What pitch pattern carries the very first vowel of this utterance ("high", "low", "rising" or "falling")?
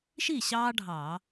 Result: falling